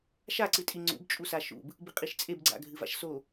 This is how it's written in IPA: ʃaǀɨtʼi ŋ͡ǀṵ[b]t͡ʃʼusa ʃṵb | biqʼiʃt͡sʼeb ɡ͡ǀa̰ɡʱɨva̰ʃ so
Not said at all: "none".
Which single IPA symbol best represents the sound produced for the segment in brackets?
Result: b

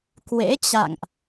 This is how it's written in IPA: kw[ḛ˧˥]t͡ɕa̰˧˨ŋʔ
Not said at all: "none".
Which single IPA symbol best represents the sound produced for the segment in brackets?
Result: ḛ˧˥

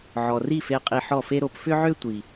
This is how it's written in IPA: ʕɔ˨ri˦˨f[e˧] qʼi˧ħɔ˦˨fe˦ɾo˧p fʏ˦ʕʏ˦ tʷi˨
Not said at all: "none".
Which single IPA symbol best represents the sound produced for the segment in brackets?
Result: e˧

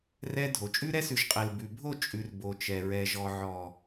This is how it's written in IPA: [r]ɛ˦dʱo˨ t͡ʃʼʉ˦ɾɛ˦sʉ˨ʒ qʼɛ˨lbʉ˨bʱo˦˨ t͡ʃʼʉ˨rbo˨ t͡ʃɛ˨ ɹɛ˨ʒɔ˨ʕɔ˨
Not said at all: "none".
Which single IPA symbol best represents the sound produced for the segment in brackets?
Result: r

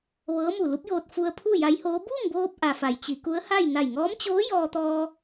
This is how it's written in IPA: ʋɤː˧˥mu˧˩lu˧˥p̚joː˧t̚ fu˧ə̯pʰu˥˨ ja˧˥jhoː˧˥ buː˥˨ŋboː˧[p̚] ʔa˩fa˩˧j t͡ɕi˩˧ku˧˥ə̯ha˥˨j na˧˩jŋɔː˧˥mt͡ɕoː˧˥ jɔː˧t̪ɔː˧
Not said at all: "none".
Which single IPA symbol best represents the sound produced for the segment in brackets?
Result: p̚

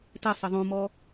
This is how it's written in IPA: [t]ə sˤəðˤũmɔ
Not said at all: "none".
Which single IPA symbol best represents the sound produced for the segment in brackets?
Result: t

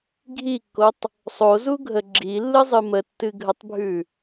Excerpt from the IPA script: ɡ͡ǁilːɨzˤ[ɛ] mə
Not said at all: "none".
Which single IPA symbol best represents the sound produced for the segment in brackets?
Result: ɨ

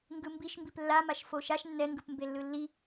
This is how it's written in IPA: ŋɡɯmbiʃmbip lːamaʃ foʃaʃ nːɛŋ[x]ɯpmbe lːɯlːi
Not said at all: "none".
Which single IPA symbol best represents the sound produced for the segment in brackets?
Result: ɡ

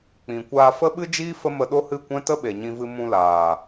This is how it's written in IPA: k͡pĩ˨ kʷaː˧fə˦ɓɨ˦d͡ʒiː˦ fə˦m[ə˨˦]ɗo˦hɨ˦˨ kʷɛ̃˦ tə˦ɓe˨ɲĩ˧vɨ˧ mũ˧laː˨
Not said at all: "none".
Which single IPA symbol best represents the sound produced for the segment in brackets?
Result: ə˧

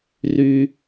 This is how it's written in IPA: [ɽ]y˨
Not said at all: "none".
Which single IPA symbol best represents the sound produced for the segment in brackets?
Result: r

